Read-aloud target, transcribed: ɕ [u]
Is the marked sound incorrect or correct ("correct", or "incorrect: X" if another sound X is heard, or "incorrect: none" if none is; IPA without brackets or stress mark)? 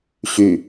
incorrect: y